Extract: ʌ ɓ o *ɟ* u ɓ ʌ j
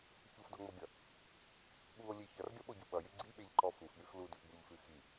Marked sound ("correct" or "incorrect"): correct